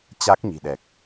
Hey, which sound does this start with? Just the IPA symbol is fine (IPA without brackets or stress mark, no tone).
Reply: t͡ɕ